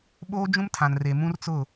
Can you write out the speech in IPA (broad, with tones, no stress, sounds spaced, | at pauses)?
ɓ oː˦ d͡ʒ ũ˦ m tʰ ã˨ n r e˨ m ũ˦ r t͡s ʊ˦˨